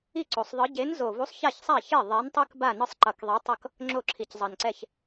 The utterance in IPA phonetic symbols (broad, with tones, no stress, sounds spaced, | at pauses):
i˥˩ ǀ o˨˩ sˤ ðˤ ɯ˨˥ ɟ e˨˥ n z o˨˩ v u˨˥ sˤ ç a˥˩ ç sˤ a˥˩ ç e˥˩ ðˤ ɛ˨˥ n tˤ ɯ˦ k b a˥˩ n ɯ˦ sˤ ǃ ʌ˨˩ k ðˤ i˨˥ tˤ ʌ˥˩ k | ŋ͡ǁ o˥˩ ǁʰ i˨˩ c zˤ ʌ˨˩ n ǀ ɛ˥˩ ç